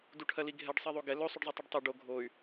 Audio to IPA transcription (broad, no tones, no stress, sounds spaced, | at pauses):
d u ʈʰ ɜ l i ɡʱ ɛ ɖ sˤ ɛ ðˤ o ɡ ɛ l ɵ sˤ u ɖ zˤ ɛ tˤ u ɖ tˤ y ɖ o ɡʱ o y̯